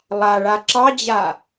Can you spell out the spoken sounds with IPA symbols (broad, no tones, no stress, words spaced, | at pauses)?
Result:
lˠaɭa ǁɑd͡ʑa